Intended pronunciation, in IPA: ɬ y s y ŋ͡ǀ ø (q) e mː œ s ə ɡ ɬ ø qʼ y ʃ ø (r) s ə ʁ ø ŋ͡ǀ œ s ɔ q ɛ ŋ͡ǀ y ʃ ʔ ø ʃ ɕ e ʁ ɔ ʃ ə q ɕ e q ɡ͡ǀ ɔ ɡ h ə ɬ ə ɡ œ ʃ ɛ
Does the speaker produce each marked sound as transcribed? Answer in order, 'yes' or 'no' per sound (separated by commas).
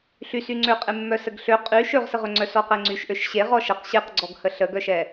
no, no